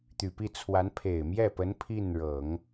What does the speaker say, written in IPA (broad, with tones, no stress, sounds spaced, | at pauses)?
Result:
t̪ y˨˩ p i˥˩ t͡sʰ w a˧˥ n pʰ e˨˩ ɪ̯ m j ɛ˥˩ p ə˧˥ n pʰ i˥˩ n ɻ ɤ˨˩˦ ŋ